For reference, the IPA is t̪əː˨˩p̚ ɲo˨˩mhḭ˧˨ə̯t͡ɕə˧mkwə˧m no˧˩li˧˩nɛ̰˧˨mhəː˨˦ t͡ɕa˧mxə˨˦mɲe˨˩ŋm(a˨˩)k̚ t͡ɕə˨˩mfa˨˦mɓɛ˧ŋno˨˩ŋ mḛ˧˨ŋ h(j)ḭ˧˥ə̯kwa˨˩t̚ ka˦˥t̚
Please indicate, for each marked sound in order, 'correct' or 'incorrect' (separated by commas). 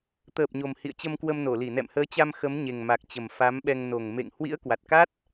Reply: correct, incorrect